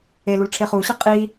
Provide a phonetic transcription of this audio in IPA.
e l u l ʈ͡ʂʰ e χ u ɕ ə qʼ i

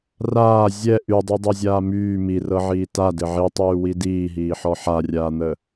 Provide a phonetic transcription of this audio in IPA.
r aː zʲ ɛ ʔ y dˤ u dˤ ɛ zʲ aː m yː m i r ɤ ʕ iː t a d ɘ ʕ i tˤ yː w i d iː ɦ iː ħ ɔ ħ a rʲ aː n̪ ə

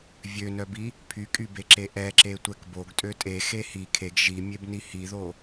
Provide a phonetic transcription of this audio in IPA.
vʲ ø n œ b i | pʰ y kʼ y b e ǁ e ʔ ɛ ǁ e tʷ ɛ k b o ɡ tʼ ø tʼ e x e h i kʰ e ɡ ʒ i mʲ e b n i h i ð o

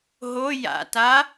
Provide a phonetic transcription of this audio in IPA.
ɦ o j a̰ t a

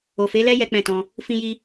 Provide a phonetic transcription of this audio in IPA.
o˨ f e˨˦ l ɛ˦ j ɛ˦ k͡p ɛ̃˦˨ t ɔ̃˧ | f ĩ˧ j i˧

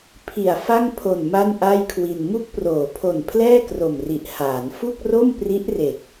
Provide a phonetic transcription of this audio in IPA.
pʰ i˨˩ a̯ f a˥˩ ŋ pʰ o˨˩ n m a˥˩ n ʔ a˥˩ j kʰ w i˧ n m u˦˥ k̚ p r oː˩˦ pʰ o˨˩ n pʰ l ɛː˥˩ k r o˨˩ m r i˨˩ ʔ h aː˩˦ n f u˥˩ k̚ r o˥˩ m p r i˦˥ ʔ r e˨˩ k̚

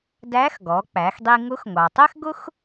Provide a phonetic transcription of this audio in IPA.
d æ˧˥ x ɡ ɔ˩˧ k͡p æ˩˧ x dˤ i˧ ŋ ʊ˧˥ x ŋʷ ɑ˩ tˤ ɛ˥ x ɡ ʊ˥ x

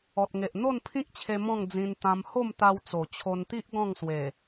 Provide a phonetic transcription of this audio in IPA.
ɔ˨ t̚ ŋ e˨ ʔ n̪ o˥˧ n pʰ ĩ˦ k̚ t͡ɕʰ e˧ m ɔ̃˥˧ ŋ d͡z ĩ˧ n t̪ ã˧ m h o˥˧ m t̪ a˧ w t͡s o˨˩ t͡ɕʰ o˧ n t̪ i˦ ʔ ɡ ɔ̃˥˧ ŋ s w e˨˩

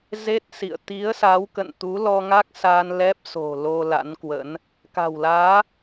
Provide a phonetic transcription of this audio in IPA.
z e˦˥ t̚ s ḭ˧˨ ə̯ t̪ i˨˦ ə̯ s a˨˦ w k ə̰˧˨ n t̪ u˨˦ l ɔ˧ ŋ a˦˥ k̚ s aː˧ n l ɛ˦˥ p̚ s o̤˨˩ l o˧ l a̰˧˥ n k w ə̰˧˥ n | k a̤˨˩ w l aː˨˦

